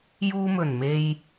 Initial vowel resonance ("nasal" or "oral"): oral